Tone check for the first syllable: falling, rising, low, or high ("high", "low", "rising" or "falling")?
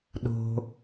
low